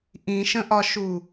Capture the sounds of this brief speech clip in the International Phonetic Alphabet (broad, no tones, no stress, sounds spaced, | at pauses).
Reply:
ʔ ĩ ʃ ə̃ ʔ ɒ ʃ u